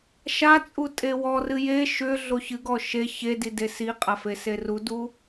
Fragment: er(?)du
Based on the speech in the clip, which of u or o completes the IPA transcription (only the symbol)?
u